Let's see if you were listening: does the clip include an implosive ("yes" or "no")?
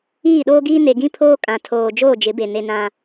yes